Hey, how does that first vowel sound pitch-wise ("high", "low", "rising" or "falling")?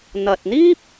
low